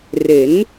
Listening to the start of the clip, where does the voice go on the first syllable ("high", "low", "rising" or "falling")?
rising